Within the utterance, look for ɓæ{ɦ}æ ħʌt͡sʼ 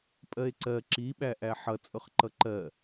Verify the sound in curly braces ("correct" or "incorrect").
incorrect